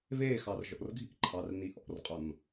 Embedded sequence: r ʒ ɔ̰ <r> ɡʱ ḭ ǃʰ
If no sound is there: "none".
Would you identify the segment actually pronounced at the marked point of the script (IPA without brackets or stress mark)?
r